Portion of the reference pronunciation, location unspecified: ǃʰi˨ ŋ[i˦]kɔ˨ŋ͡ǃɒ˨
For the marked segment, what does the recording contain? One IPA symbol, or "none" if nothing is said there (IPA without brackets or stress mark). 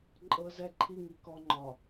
i˨